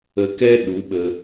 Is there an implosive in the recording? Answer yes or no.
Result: yes